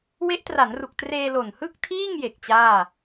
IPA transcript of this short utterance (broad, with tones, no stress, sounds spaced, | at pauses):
w e˦˥ ʔ t r a˩˦ n r u˨˩ k̚ t r eː˧ l o˨˩ n h ɯ˥˩ k̚ tʰ iː˥˩ ŋ j e˨˩ k̚ t͡ɕ aː˥˩